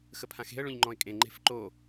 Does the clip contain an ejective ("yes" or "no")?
yes